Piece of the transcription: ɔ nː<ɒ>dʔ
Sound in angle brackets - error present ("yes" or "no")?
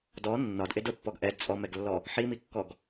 no